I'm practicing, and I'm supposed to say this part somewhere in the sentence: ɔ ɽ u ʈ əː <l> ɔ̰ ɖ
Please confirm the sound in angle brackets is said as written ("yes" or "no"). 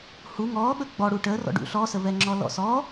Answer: no